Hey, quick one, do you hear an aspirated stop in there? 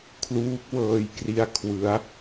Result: yes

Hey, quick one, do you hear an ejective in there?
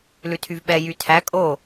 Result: yes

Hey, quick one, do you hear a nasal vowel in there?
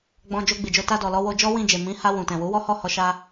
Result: yes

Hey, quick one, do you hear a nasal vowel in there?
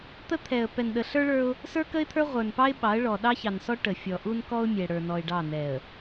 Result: no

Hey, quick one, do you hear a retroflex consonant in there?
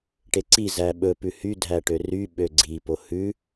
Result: yes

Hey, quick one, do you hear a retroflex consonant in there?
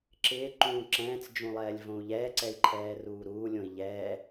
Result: no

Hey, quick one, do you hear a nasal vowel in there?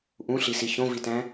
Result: yes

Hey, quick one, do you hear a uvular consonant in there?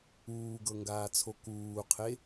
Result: yes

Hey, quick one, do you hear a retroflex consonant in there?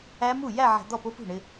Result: yes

